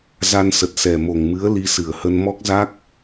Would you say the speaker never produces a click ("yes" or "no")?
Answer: yes